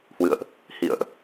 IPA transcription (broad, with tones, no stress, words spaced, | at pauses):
hwɨ̰˧˨ə̯ʔ | hḭ˧˨ə̯ʔ